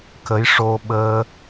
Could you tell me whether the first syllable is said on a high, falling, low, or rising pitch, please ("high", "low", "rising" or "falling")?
rising